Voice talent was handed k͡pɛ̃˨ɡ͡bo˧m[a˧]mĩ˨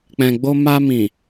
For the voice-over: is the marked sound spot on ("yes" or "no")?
yes